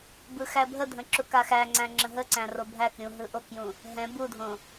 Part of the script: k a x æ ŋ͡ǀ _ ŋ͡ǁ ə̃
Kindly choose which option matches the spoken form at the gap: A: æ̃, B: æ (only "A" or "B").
A